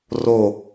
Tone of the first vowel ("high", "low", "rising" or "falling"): falling